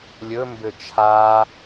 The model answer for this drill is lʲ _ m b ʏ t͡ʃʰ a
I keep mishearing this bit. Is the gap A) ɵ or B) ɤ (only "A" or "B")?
A